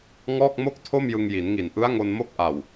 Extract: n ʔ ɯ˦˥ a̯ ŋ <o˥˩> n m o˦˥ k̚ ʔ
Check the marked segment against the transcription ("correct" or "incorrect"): incorrect